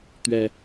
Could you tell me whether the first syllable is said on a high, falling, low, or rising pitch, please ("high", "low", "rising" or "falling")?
low